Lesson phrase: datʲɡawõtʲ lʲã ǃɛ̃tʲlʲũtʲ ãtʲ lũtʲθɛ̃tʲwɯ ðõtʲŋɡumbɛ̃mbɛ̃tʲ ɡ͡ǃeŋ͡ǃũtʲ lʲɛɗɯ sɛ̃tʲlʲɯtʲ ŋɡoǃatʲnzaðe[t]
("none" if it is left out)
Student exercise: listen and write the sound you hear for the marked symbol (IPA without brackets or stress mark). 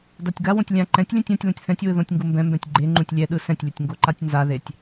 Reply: tʲ